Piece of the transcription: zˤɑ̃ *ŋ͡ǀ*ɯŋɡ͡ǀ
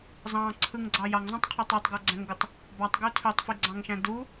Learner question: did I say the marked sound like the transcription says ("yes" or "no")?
no